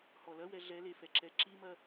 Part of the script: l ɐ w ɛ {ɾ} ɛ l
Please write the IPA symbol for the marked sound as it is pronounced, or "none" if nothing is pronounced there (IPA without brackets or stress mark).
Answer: ɮ